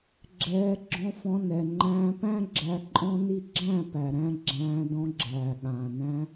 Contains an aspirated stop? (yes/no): no